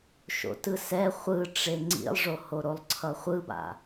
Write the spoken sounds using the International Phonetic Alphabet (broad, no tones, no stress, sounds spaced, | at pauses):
ʃ o̰ t ɯ s ɛ χʷ ɯ ʈ͡ʂ e ŋ͡ǀ ḭ lˠ ʐ o h o ɾ o lˠ ǀʰ ʌ χʷ ɯ b a̰